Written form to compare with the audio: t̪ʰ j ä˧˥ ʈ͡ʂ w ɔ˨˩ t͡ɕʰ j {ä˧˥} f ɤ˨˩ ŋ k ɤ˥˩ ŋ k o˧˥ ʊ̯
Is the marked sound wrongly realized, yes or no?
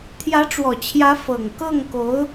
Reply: no